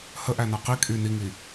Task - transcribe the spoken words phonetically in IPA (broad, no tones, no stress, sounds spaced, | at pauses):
h ə ʔ æ n a q i kʼ y n i ŋ i